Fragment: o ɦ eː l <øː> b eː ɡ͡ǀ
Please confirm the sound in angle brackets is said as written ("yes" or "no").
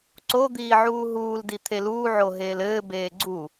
no